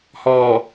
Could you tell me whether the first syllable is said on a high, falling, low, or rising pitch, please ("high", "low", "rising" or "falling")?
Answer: low